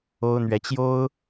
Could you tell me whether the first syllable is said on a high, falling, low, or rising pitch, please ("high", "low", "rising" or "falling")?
high